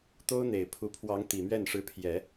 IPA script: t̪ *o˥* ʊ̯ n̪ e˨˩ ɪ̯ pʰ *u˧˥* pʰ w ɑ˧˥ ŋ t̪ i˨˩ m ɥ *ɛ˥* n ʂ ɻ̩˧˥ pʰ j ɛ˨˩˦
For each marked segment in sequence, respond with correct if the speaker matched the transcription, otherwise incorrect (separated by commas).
correct, correct, incorrect